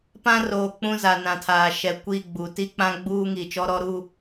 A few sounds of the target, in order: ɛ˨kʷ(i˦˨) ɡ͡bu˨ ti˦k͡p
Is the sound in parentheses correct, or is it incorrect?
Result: correct